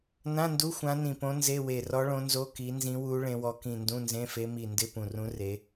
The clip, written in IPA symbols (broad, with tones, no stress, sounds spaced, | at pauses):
n ã˧˥˧ n d u˧˥˧ xʷ ã˧˥ n ĩ˧˩ p õ˧˥ n z e˧˥˧ w e˧˩ r ɔ˧˥ ɭ õ˧˥ n z o˧˥˧ k i˧˥ n z ĩ˧˥ w u˧˥ ɭ ẽ˧˥ w ɔ˧˥ k ĩ˧˩ n d ũ˧˥˧ n z ẽ˧˥˧ f e˧˥ m i˧˩ n d ɪ˧˥˧ p ũ˧˩ r ũ˧˥ r e˧˥